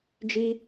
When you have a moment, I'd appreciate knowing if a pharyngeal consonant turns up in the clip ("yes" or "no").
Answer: no